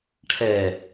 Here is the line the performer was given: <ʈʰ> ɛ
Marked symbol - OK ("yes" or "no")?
yes